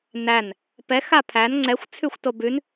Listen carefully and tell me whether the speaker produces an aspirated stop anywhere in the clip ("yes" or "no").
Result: yes